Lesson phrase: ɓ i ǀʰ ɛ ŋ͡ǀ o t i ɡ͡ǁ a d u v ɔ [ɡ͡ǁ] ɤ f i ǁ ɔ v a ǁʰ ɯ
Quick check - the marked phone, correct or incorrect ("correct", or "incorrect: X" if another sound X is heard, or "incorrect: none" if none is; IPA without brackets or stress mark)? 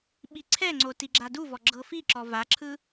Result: correct